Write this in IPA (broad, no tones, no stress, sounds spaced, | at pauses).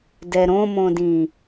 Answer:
d ɛ ɾ õ m õ d ĩ